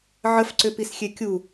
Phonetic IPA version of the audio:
ʕ ə f ǀ ʏ p i s xʲ e kʲ u

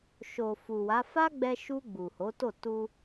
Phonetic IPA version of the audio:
ʃ o˨ f u˨ w a˨˦ f a˦ ɡ͡b ɛ˧ ʃ u˧ ɡ͡b u˨ h o˨˦ t o˦˨ t u˧

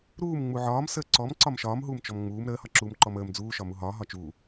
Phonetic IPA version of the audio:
ɾ uː m ŋ͡m u ʕ ɒː m s əː ǀ ɔ m ǀ ɒ m ʃ ɒː m ɦ uː m t͡ʃ ɔ m ŋ͡m uː m ɾ əː h ɒ ǁ uː m ǃ ɔ m əː m d͡z uː ʃ ɒ m u ɦ ɒː ɦ ɒ t͡ʃ uː

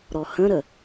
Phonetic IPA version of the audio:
ɾ ɔ h ə̃ ɾ ə

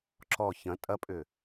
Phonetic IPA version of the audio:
ǁ ɔ ç ɐ̃ tʼ ɐ pʼ ʏ

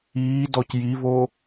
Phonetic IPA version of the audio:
iː d ɔ c j i v o

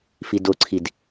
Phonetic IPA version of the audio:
f i d o ǀʰ i d

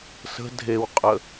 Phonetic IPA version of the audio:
s ə̤ dʱ e w qʼ ə

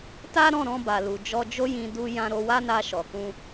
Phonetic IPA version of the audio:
t a˦ ɾ ɔ̃˦˨ ɾ ɔ̃˧ b a˨ l u˨ d͡ʒ ɔ˧ d͡ʒ o˦ j ĩ˧ d u˦ j ã˦ ɾ o˧ w a˦ n a˧ ʃ ɔ˨ k ũ˧

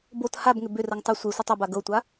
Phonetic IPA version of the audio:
b o t h a b ŋ ʏ b ʏ r ə ŋ tˤ ə sʷ e sʷ i tˤ ʏ b a ɡ ɤ tʷ a

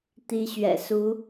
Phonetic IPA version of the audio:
t̪ i˦ ɕ ɥ ɛ̰˨˩ s u˨˦

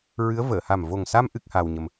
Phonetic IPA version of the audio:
ɹ ɨ˧˥ ə̯ v əː˨˩˨ h a˨˩ m v o˨˩ ŋ s a˧ m ʔ ɨ˦˥ k̚ h aː˧ w ɲ ə˧ m

